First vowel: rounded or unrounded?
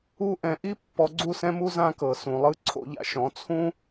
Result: rounded